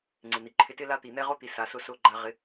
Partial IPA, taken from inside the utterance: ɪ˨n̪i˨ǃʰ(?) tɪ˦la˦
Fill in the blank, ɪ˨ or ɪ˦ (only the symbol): ɪ˦